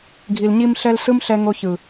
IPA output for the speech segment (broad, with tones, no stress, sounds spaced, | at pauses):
ɡʱ i˨ l ɲ i˧ m ɬ ɛ˧ l s ɯ˦ m ɬ ɛ˧ ŋ o˧ ç ɯ˨